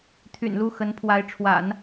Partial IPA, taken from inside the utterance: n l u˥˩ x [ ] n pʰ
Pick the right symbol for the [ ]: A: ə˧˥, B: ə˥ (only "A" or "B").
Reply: A